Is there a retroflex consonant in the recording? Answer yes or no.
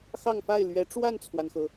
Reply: yes